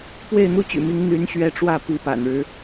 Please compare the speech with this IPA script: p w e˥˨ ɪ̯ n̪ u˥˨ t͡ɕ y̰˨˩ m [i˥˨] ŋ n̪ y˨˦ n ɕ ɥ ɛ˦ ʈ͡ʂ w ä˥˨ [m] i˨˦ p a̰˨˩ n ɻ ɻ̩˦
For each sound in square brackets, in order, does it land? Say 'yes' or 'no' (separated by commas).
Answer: no, no